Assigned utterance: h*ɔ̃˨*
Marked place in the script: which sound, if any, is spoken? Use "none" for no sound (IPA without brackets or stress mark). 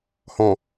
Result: ɔ̃˨